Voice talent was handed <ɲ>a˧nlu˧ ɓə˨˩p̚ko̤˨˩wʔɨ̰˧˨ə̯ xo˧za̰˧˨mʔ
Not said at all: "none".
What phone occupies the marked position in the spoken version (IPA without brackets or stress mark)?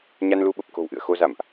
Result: ɲ